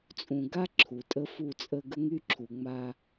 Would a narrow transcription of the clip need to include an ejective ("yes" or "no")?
yes